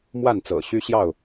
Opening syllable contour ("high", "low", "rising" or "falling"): falling